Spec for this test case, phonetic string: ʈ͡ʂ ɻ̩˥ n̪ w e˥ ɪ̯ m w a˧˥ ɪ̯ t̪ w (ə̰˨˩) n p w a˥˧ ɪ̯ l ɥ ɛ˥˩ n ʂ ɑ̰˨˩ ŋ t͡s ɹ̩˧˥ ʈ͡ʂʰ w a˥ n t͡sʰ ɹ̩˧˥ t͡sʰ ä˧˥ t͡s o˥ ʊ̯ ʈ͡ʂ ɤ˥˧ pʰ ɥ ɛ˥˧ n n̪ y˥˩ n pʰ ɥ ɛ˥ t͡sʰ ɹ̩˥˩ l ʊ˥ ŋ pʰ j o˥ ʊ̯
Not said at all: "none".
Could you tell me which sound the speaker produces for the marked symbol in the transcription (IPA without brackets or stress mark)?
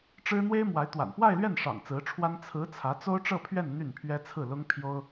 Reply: a̰˨˩